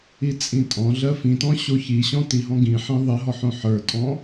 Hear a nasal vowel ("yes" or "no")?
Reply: yes